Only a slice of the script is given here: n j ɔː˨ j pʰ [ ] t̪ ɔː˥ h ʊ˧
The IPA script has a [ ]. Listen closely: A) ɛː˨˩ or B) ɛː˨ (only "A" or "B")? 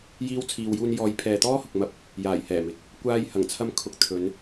B